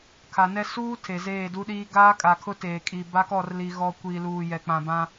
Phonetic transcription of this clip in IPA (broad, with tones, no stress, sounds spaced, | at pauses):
kʰ a˨ n ɛ˦ s uː˦ tʰ e˨ z eː˦˨ d u˦ ɗ iː˦ ɡ aː˦ kʼ a˨ kʰ ʊ˦ t eː˨ kʼ i˨ b a˦ k ɔ˦˨ r l i˨ ɣ ɔ˨ kʷ i˨ l uː˨ j ɛ˨ k͡p ã˨ b ã˦